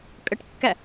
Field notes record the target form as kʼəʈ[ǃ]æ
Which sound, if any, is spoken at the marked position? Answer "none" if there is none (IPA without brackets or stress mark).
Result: kː